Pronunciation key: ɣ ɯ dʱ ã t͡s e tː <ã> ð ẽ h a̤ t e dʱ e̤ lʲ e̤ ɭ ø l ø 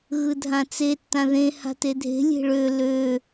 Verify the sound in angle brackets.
correct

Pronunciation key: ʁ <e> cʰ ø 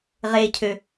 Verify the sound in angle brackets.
correct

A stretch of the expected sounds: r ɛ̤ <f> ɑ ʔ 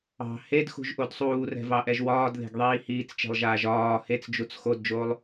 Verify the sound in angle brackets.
incorrect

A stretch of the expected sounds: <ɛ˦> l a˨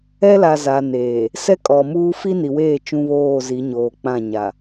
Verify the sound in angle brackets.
correct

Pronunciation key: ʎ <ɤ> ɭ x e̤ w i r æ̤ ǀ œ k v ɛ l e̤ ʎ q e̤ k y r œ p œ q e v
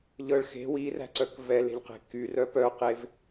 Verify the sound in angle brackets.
correct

